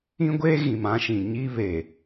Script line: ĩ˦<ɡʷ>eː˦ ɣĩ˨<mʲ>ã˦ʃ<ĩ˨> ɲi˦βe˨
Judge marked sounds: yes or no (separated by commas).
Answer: yes, no, yes